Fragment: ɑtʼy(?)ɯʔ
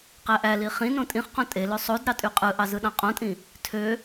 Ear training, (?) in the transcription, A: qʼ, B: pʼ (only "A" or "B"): A